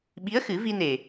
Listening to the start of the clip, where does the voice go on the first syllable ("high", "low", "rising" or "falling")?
rising